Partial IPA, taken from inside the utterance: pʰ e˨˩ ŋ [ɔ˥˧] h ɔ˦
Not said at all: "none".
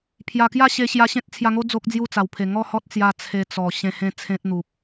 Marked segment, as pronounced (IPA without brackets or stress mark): ɔ˥˧